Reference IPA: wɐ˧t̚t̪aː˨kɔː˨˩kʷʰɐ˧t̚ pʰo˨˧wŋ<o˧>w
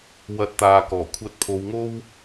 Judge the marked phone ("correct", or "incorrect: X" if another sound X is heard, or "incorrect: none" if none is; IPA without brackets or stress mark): incorrect: o˥